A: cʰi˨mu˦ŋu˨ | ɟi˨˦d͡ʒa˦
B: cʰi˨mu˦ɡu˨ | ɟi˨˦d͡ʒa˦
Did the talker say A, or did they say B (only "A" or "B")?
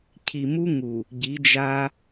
A